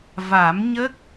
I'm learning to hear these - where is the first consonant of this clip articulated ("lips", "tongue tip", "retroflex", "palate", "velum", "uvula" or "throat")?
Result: lips